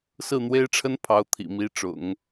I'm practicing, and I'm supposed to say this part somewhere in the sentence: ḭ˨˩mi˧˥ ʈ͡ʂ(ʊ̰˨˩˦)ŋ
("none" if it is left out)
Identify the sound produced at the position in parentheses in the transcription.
ʊ̰˨˩˦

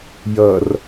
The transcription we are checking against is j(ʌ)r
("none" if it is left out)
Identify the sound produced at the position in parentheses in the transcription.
ʌ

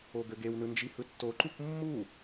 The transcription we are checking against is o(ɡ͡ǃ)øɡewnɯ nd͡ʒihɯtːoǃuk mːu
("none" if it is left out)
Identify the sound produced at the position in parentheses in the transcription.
ɡ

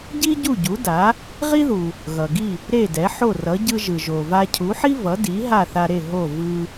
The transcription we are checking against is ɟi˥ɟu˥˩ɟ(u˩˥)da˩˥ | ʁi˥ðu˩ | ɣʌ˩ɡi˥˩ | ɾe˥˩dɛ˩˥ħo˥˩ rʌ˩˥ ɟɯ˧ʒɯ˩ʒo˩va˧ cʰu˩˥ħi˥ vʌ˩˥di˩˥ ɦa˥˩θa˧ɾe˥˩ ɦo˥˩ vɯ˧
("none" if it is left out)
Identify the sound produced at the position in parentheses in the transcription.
u˩˥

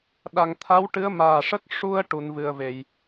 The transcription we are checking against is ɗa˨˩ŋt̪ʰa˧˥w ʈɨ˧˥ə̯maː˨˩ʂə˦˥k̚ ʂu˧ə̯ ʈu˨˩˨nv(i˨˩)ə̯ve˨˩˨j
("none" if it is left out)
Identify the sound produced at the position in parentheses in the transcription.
ɨ˨˩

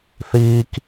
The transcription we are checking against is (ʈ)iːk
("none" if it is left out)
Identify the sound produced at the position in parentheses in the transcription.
θ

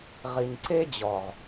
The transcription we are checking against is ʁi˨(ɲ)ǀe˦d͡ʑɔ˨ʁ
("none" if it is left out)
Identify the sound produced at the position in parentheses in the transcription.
ɲ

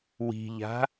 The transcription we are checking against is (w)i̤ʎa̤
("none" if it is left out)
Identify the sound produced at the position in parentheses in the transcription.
w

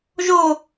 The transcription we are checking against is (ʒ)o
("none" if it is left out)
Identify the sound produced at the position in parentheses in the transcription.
ʒ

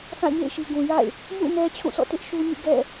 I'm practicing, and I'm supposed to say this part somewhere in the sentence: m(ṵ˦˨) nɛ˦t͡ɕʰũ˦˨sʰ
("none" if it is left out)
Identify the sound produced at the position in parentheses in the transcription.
ṵ˦˨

